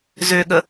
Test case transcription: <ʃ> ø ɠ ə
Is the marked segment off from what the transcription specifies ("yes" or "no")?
yes